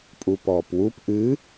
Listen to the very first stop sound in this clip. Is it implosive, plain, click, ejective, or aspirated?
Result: ejective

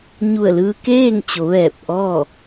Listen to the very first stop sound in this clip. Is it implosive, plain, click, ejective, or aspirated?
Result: plain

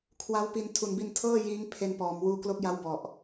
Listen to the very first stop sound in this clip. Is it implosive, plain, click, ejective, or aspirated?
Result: aspirated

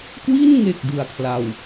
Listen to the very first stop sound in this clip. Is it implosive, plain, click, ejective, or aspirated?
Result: plain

